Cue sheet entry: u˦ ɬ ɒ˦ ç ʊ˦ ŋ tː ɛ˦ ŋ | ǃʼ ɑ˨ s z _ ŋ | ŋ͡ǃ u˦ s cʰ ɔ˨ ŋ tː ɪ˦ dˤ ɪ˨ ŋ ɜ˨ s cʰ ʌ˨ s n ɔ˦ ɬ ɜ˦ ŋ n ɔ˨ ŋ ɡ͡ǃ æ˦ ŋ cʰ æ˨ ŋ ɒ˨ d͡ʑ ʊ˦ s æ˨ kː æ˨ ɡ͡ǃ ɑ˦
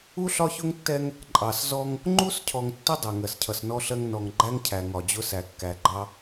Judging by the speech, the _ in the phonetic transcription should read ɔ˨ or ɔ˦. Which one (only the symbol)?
ɔ˦